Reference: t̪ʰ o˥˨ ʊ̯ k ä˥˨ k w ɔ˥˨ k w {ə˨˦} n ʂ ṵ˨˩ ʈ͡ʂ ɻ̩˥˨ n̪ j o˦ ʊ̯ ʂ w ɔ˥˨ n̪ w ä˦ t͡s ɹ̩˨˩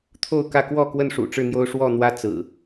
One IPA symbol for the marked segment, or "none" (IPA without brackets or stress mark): ə˥˨